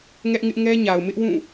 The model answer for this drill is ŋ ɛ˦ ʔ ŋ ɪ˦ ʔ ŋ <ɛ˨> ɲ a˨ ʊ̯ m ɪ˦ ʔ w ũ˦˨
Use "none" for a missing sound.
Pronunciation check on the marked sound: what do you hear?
ɛ˦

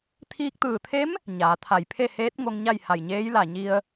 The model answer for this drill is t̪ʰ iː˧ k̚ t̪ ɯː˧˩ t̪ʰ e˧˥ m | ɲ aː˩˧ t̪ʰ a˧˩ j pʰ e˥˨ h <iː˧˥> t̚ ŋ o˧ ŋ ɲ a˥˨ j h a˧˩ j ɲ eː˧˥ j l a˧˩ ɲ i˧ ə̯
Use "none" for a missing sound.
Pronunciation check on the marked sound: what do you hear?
eː˧˥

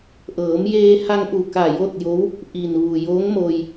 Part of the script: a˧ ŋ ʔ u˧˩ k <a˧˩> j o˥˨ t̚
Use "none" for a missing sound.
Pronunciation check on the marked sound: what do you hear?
a˧˩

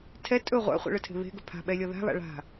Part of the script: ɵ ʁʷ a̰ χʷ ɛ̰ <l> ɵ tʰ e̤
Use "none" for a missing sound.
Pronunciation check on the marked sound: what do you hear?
ɭ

